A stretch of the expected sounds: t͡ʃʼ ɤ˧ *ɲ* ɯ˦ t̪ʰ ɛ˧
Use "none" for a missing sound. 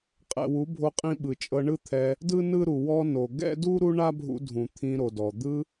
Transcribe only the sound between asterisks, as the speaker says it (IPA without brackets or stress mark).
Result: ɳ